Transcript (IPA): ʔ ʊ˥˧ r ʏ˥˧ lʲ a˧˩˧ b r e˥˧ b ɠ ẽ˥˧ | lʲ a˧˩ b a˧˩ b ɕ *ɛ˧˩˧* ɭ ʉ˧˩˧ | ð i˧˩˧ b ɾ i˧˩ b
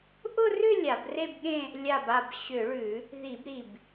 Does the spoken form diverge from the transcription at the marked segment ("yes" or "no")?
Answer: yes